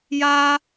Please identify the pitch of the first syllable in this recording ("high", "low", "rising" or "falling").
high